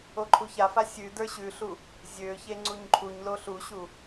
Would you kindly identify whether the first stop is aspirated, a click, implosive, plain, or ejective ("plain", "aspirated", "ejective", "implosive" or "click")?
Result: click